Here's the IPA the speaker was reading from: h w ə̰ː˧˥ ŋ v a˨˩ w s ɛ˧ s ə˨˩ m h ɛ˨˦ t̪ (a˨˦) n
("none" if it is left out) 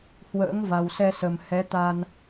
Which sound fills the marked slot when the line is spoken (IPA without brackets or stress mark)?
a˧